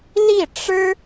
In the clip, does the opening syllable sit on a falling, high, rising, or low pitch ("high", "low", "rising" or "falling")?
falling